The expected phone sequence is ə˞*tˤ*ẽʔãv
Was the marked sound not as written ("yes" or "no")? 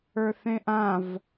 yes